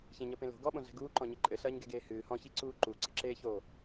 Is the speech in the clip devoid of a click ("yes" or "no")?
no